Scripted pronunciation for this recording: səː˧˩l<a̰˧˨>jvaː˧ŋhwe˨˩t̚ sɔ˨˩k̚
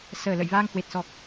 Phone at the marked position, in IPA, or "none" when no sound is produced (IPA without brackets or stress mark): ə̰˧˨